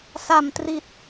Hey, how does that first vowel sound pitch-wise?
low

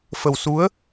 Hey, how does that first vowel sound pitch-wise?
low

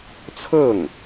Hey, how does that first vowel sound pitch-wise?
falling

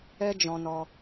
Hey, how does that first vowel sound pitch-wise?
high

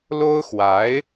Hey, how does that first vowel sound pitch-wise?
high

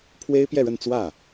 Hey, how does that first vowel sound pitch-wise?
high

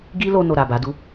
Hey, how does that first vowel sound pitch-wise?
high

